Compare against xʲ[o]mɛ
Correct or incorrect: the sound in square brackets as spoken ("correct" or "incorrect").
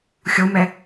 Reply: correct